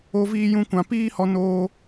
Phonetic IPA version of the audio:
o˧ v iː˧ j ũ˧ kʷ ã˨ p iː˦ h ɔ˧ n oː˦

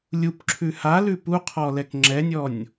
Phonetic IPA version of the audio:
lʲ u p ǁʰ ʉ h a l ʉ p u qʰ ɔ l ɛ k ŋ͡ǁ ɛ nʲ ɔ nʲ

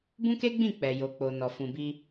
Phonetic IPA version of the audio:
b ũ˦ k e˦ ɡ͡b ĩ˦˨ k͡p ɛ˨ j o˨ k͡p o˨ n ɔ˨ f ũ˨ b i˧

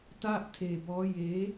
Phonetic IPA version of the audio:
t a˥˩ ʔ tʰ eː˧ b ɔː˦˥ j eː˦˥

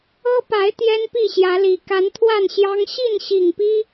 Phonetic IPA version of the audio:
ɤ˦ p a˨˦ ɪ̯ t̪ j ɛ˦ n p i˥˨ ɕ j ä˨˦ l i˨˩ k a˨˦ n t̪ʰ w a˥˨ n ɕ j ɑ˦ ŋ ɕ i˥˨ n ɕ i˨˩ ŋ p i˦

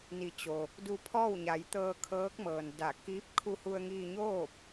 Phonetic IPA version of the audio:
n i˩˧ t͡ɕ o˩ | d u˧ pʰ ɔː˥˨ w ɲ a˩˧ j t̪ ɤː˧ kʰ ɤː˧˥ k̚ m ɤː˩ n d a˧˩ k iː˧˥ p̚ kʰ u˧ h u˧ ə̯ ŋ iː˧ ɲ oː˥˨ p̚

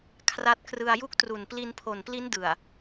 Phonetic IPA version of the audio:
kʰ r a˦˥ t̚ k r ɯ˧ a̯ j u˥˩ k̚ t r u˨˩ n p l i˧ n pʰ o˨˩ n p l i˦˥ n d ɯ˨˩ a̯

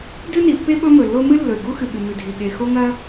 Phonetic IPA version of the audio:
d ʉ˥ n i˩ pː e˥ ɓ ɵ˥ m ɵ˩ lː o˥ m ɨ˥ lː ɵ˩ ɪ̯ ɡ u˥ x ɨ˩ ɠ ɨ˩ m ʉ˩ dʱ i˩ ɠ e˩ x o˥ ŋ ɐ˥

